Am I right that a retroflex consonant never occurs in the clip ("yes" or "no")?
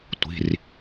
yes